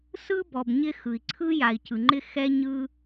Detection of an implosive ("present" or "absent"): absent